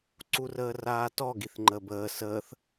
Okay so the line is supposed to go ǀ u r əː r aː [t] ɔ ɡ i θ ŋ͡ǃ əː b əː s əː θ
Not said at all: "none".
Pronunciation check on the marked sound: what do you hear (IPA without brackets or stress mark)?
t